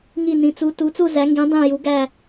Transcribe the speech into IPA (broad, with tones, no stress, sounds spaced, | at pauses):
ŋ i˥˧ n ĩ˧˥ t͡s u˧˥ t u˧˥ t͡s u˥˧ z æ˧˥ ŋ ɡ ĩ˧˥ dˤ ĩ˥˧ j u˧˥ ɡ æ˥˧